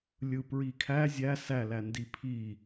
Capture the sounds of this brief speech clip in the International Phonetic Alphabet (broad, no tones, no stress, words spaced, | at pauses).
lʲɯpɹikʰæ zʲæ sælændi pʰi